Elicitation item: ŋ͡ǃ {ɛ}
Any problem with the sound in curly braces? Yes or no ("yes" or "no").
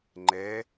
no